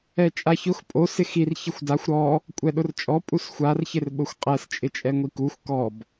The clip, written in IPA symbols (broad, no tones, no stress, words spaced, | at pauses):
ɛt͡ʃʼaçʊx pʼo sɪxir çɪxʷdaxʷ ɾɔ | kʷʼɛɗʊrt͡ʃʼɔ pʼusxʷar çɪrɓʊxʷqʼɛs t͡ʃʼɪt͡ʃʼɛŋʷikuxʷ kɔb